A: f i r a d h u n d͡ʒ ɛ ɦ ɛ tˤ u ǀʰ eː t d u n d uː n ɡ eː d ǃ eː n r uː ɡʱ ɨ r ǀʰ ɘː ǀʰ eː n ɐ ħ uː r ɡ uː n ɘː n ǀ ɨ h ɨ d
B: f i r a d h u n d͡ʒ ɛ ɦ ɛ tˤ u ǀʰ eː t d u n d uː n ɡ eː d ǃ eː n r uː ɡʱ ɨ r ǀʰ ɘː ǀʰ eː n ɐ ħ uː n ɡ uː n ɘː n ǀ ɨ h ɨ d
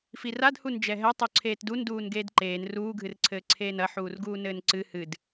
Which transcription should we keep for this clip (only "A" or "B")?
A